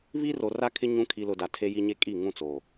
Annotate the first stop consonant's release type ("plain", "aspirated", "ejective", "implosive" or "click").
aspirated